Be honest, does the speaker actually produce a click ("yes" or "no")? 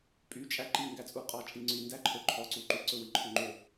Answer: yes